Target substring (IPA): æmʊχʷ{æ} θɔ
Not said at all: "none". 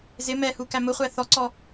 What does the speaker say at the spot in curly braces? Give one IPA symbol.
æ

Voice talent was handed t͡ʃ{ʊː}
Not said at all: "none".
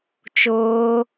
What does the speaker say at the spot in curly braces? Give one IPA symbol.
ʊː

